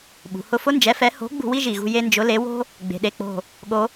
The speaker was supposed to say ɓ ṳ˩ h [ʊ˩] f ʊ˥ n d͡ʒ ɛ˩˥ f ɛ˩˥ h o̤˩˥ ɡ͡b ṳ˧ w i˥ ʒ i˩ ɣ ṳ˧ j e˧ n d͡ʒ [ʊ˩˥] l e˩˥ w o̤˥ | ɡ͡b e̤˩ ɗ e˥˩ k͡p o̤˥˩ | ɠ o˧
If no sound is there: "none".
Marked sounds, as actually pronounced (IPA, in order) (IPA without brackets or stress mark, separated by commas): ʊ˥˩, ʊ˩˥